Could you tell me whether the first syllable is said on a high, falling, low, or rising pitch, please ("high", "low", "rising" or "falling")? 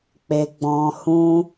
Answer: high